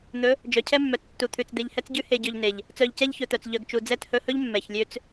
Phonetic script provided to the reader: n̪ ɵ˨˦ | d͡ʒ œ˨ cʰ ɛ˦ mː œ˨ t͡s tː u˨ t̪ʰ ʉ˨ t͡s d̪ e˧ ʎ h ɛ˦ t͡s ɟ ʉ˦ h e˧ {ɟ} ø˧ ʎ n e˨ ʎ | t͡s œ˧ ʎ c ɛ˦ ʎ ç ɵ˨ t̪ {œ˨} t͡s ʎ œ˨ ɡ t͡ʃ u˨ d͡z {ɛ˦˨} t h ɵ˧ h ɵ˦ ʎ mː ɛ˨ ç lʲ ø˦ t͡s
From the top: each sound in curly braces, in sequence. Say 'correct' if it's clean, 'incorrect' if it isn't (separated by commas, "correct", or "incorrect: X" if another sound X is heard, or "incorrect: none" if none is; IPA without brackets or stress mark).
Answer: correct, correct, correct